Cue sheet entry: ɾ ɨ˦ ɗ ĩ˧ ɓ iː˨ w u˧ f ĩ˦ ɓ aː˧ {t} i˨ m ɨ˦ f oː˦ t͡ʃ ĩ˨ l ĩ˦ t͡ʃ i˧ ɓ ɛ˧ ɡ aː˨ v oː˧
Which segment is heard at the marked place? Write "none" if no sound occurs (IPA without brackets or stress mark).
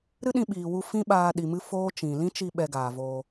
ɗ